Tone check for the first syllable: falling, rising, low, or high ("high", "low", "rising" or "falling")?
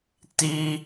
high